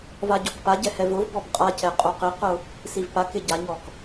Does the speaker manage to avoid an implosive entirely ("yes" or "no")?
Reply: yes